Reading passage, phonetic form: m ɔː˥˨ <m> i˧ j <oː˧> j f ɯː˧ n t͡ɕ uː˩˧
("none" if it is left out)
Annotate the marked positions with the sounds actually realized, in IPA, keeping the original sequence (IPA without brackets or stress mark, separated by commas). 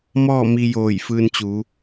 m, oː˧˩